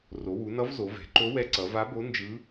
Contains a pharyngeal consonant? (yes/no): no